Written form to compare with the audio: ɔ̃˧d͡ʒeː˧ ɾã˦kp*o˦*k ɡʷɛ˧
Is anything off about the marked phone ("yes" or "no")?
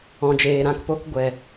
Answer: no